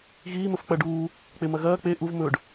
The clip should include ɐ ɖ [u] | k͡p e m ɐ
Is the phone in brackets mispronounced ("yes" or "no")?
yes